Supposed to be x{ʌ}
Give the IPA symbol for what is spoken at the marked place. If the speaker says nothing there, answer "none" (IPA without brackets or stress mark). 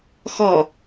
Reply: ɔ